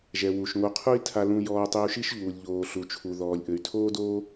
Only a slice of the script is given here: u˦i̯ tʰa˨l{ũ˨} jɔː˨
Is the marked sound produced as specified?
yes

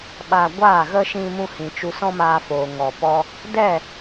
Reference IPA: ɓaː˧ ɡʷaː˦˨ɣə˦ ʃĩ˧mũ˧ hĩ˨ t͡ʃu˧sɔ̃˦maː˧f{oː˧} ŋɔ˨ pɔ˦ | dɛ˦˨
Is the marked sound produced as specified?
no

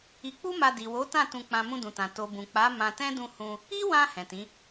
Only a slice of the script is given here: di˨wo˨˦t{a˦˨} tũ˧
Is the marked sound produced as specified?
no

